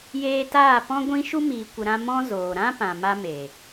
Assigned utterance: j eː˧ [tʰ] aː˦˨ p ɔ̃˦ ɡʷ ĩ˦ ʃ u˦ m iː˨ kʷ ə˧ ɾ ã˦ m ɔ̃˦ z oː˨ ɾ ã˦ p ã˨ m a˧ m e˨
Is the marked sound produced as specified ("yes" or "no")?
no